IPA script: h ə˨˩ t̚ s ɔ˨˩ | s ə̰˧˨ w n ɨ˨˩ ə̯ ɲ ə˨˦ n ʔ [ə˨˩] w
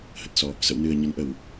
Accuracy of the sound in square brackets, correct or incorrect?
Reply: correct